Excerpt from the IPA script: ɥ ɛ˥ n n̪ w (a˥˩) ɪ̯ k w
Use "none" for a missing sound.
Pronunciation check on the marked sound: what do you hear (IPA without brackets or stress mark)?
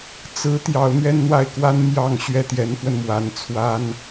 a˥˩